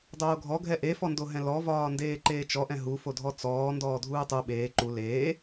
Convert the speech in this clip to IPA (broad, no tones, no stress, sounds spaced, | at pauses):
dˤ oː ɡʱ ɔ ɡʱ ɛ ʔ e f ɔ n d o ɦ ɛ̃ l ɔ v ɒː n d eː ǃ eː t͡ʃ ɔ ʔ ɛ̃ ɦ u f o dʱ ɔ t͡s ɔː n d ɔː dʱ uː tˤ u ɓ eː ǃ u l eː